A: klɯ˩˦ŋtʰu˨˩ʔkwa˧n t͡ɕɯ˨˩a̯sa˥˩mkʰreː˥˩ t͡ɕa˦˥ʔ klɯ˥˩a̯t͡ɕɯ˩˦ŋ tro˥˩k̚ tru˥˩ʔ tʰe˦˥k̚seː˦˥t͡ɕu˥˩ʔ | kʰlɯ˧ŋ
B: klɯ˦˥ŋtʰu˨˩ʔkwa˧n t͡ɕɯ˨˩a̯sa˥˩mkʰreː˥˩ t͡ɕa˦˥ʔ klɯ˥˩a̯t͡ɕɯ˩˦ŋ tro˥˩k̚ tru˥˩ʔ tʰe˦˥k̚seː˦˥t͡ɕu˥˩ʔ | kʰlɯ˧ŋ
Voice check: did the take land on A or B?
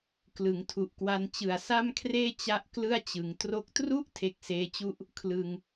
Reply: A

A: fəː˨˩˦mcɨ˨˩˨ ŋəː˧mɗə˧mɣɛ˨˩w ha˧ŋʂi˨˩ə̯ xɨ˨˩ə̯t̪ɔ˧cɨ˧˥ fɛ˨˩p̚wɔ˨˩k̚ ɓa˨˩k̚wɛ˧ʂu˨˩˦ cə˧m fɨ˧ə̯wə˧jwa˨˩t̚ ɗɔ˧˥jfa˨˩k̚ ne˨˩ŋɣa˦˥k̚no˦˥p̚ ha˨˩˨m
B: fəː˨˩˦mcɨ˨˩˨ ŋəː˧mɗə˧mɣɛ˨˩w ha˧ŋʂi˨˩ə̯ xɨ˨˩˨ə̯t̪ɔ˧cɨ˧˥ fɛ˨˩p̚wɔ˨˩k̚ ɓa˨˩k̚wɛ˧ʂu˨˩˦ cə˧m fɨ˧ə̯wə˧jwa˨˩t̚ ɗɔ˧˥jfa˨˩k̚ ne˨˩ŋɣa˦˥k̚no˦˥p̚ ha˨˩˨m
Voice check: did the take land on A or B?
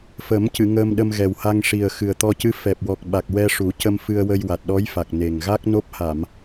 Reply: A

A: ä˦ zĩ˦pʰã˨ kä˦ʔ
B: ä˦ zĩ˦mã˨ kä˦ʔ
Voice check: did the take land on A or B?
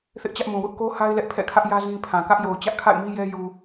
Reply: A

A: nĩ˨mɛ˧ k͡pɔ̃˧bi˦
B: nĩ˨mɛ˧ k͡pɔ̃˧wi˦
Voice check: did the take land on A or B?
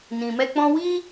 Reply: B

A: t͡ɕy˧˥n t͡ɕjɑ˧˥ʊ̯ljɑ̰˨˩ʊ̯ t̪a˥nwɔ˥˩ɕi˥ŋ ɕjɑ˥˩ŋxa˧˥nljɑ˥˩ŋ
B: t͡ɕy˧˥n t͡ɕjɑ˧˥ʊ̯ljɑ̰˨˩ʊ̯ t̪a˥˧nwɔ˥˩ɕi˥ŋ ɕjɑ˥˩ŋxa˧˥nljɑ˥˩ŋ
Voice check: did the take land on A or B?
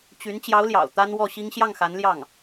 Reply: A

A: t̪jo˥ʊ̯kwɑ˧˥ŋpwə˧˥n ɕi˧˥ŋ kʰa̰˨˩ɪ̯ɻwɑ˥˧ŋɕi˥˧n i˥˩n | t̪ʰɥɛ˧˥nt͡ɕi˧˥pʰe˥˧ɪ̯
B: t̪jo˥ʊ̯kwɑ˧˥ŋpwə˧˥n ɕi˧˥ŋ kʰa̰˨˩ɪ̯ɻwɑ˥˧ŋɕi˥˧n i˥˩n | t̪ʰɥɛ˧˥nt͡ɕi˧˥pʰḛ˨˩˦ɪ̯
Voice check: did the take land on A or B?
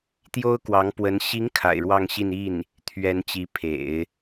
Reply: B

